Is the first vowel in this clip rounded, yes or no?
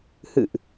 no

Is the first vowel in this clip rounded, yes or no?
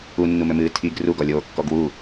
yes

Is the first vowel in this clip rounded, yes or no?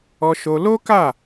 yes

